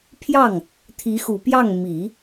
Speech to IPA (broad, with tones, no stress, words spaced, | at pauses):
pʰjɑ˥˩ŋ | t̪ʰi˧˥ xu˨˩pjɑ˥˩ŋ mi˨˩˦